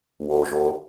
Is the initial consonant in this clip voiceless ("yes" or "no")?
no